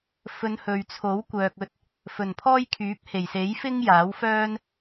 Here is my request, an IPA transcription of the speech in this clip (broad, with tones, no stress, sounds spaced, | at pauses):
f ɵ˨˧ n h ɵ˨ ɥ t͡sʰ o˨˥ w kʷ œː˨ k̚ ɵ˧ t̚ | f ɵ˨˩ n pʰ ɔː˥ j kʰ yː˨˥ p̚ h e˨˩ j s e˨˥ j f ɪ˥ ŋ j aː˨˥ w f œː˥ n